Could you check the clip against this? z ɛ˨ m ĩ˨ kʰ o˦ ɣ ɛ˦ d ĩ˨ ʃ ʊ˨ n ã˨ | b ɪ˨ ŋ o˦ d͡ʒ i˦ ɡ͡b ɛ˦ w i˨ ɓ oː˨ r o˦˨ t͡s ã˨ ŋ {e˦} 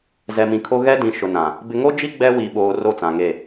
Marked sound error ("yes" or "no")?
yes